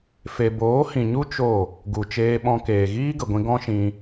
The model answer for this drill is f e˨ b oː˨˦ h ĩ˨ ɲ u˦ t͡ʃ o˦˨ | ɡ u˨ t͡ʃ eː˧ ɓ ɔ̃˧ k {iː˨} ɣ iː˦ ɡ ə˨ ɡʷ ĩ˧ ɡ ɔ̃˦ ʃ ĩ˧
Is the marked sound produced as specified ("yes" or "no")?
no